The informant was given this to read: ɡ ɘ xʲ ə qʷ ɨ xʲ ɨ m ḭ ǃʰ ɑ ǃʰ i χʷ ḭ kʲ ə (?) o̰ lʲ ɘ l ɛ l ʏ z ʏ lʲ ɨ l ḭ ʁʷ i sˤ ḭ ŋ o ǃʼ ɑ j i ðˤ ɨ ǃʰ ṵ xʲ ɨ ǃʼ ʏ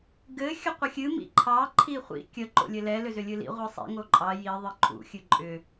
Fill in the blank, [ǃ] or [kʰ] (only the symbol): ǃ